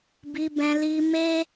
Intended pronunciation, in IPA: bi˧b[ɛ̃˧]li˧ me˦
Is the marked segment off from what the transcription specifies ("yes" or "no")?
no